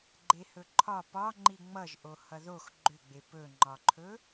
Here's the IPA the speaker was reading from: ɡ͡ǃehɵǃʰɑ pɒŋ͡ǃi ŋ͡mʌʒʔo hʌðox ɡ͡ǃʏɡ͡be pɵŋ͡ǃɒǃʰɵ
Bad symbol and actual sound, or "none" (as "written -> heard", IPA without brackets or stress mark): ɑ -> ɒ